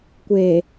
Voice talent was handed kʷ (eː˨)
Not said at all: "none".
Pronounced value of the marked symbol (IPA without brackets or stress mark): eː˨